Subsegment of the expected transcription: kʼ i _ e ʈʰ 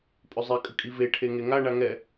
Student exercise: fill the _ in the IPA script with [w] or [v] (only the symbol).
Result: v